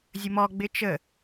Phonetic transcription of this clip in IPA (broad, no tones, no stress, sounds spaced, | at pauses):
zʲ ə m ɔ ɡ͡b ɪ t͡ʃ ə